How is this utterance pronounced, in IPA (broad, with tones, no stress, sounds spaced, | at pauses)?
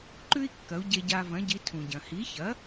ǃ ʉ˥ i̯ kː ɐ˩˥ u̯ ɟ e˧ ɟ a˧ v ɐ̃˩˥ ɟ i˩˥ tʰ ũ˩ ɟ ɐ̃˩ h i˩˥ ç ɐ˩˥